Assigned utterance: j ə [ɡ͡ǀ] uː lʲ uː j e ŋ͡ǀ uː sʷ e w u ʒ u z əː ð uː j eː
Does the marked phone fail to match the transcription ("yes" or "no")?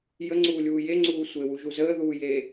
yes